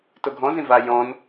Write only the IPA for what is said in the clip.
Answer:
t o ɡʱ ɔ̃ z ĩ v a j ɔ̃ n

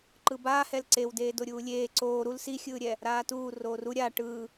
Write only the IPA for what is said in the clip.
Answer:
ǃ ɯ b aː h ɛ l ǀ e w d eː d o ɾʲ uː lʲ eː ǀ oː ɾ u l s i xʲ ɯː ɾʲ ɛ | ɾ aː t uː r oː r u ɾʲ a ʈ ɯː

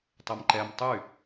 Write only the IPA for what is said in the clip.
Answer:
tˤ e m ǃ ɛ m tˤ y

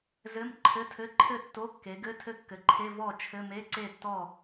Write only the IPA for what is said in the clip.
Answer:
z ɘ˧˥˧ m ǃʰ ɘ˧˥˧ tʰ ɘ˧˥˧ ǃʰ ɘ˥˨ tː o˧˥˧ kː e˩˧ ɡ ɘ˧˥˧ tʰ ɘ˥˨ kː ɘ˩˧ ǃʰ e˧˥˧ v ɔ˥˨ t͡ʃʰ ɘ˧˥˧ m e˧˥˧ ǀ e˥˨ tː ɔ˥˨

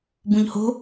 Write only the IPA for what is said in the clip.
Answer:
b ũ ʎ h o̤

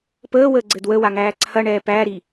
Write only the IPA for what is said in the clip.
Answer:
p əː w əː ɡ͡ǀ ɘ d w ə w a ŋ æː ǀʰ ɐ ɳ ɛː p æː ɾ i

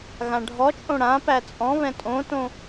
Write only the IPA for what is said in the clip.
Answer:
ɣ ã ɖʱ ɔ t͡ʃʼ õ ɽ ã p æ t͡sʼ ɔ̃ β ɛ̃ tʼ õ t õ

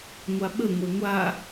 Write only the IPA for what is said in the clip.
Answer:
ŋʷ a ɓ ə ŋʷ ɛ ŋʷ a

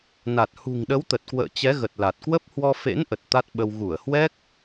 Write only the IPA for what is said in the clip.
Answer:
n a˨˩ t̚ h ṳ˨˩ ŋ ɗ ə˨˦ w t̪ ə˨˩ t̚ k w ə̰ː˧˨ t͡ɕ ɛ˨˦ ɣ ə˨˩ t̚ l a˨˩ t̚ k w ə˦˥ p̚ h w ɔ˧ f ḛ˧˥ n ʔ ə˨˩ t̚ t̪ a˦˥ t̚ ɓ ə˧ w ɣ u˧˩ ə̯ h w ɛ˦˥ k̚

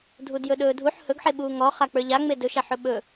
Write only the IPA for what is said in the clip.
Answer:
dʱ u d j ɵ ɗ ɵː dʱ u ħ h ɵ ɡ ħ e ɓ uː ŋ ɔ χ a k͡p ə˞ ʎ a ŋ͡m e d ɵ ʃ a ħ ɵ ɓ ɵ

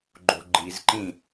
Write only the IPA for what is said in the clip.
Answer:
ɡ͡ǃ o̤ ɡ͡ǃ i z ǃ ĩ

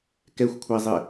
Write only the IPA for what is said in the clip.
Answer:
k ɛ xʷ kʷʰ æ zˤ ɪ

